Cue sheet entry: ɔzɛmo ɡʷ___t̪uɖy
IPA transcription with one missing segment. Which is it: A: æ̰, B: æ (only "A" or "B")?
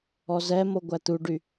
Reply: B